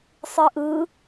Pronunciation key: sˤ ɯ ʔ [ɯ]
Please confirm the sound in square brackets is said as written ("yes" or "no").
yes